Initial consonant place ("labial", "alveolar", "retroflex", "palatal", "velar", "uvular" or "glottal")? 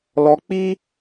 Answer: alveolar